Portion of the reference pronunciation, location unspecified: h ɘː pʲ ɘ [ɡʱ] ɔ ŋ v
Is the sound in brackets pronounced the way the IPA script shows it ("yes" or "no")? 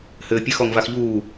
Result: no